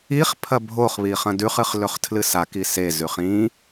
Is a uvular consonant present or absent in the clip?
present